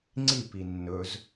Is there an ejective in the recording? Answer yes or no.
no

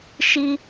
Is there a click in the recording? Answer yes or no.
no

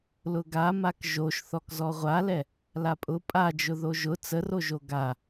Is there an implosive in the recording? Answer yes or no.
no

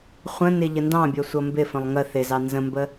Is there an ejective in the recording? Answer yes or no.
no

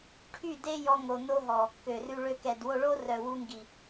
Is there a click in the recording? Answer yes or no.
no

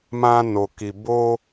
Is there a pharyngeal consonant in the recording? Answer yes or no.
no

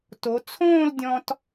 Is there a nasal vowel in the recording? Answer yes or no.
yes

